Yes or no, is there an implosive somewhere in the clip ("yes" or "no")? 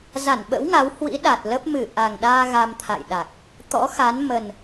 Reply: yes